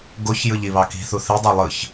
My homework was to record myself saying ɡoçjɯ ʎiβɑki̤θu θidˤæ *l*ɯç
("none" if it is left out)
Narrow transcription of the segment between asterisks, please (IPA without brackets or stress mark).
lˠ